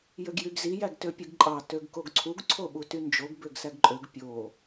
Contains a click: yes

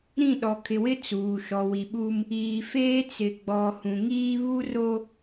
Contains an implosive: yes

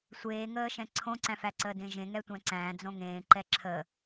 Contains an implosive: no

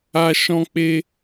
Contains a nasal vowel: yes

